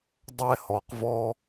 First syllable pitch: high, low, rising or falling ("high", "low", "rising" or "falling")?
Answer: high